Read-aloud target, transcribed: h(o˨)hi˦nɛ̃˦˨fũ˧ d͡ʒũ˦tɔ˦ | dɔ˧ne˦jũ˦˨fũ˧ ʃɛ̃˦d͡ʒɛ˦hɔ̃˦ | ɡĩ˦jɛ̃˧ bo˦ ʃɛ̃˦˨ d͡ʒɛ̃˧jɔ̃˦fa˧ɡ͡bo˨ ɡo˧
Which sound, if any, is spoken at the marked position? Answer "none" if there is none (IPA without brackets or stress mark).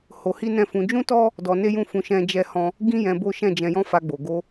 o˧